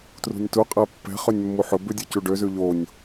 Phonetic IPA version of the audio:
t r ṳ nʲ t u qʼ æ pː ɛ̤ χ ø nʲ mː u ħ ɵ b ʉ dʲ o c u ɖ ø z ʉ ʎ o nʲ

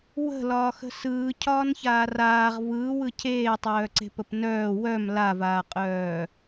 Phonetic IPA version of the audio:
w ə̤ l ɒː x ə̤ s ɯː cʰ ɒː n ç aː r aː ʁ v ɯː w ɯ cʰ eː tˤ œː ǀ e̤ p ə p n œː w œ m l a v aː qʼ œː

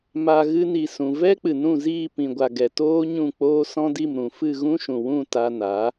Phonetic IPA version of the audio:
m a˨ ɣ ɨ˧ n i˨ s ũ˨ v ɛ˦ k͡p ɨ˨ n ũ˦˨ z iː˦˨ p ĩ˨ ɡʷ a˨ ɡ ɛ˨ t oː˦ ɲ ũ˦˨ k͡p oː˦ s ɔ̃˦ d i˦˨ m ɾ ũ˨ f ɨ˦˨ ɣ ũ˦ ʃ ũ˨ w ũ˦˨ t a˧ n a˨˦

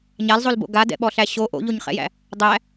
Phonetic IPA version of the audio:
ɲ a l zˤ o l b o̰ ɡ a d ɛ̰ ɓ ɔ ɬ æ ɕ o ʔ o̰ ʎ o ɲ χ ɛ̰ j æ̰ | dˤ æ

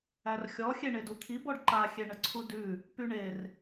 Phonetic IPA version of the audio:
æ r xʲ ɔ xʲ e ɳ e d u t̪ʰ i b ɔ ɖ ǃ a xʲ e ɳ ə ǀʰ u d ʉ | p y ɳ e r

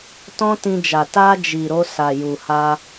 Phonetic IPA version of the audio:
t ɔ̃˦ t ĩ˧ d͡ʒ a˨ t a˧ d͡ʒ i˨ ɾ o˧ s a˨ j u˨ h a˧

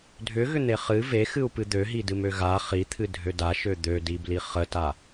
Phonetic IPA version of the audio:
dʱ ʏ ɣ ʏ n̪ e χ ɨ v e x ɨ u̯ p ɨ d̪ ø ɦ i d ɨ m ø ɣ a χ i t̪ʰ ɨ dʱ ø d a ʃ ø d̪ ø d i b l i χ ə t a

